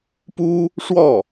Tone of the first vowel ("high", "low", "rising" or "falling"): high